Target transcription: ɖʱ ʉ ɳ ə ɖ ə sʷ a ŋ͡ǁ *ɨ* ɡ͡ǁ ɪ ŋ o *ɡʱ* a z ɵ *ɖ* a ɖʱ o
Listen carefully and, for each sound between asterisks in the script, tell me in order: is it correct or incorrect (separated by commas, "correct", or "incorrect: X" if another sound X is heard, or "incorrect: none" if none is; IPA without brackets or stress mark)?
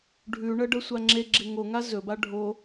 incorrect: e, incorrect: ŋ, incorrect: b